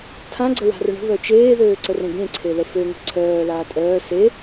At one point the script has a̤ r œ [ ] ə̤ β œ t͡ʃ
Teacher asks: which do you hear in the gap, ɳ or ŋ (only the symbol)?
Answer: ɳ